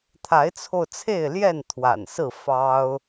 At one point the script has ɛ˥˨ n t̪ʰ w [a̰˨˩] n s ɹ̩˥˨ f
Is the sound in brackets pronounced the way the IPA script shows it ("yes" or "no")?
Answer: yes